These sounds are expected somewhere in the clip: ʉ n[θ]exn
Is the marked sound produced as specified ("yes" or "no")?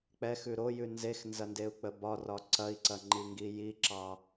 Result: no